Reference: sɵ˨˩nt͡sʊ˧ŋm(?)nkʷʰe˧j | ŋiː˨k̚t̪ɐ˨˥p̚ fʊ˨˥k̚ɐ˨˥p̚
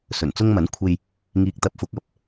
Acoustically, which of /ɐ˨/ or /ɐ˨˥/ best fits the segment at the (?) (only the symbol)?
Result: ɐ˨˥